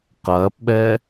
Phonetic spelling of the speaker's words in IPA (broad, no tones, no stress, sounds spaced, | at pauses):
q ɐː p ɓ ɛ